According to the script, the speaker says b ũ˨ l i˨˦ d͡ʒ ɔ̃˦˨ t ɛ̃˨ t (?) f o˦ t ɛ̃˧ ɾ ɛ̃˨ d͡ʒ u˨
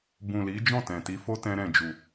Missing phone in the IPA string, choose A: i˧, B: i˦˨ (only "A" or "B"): A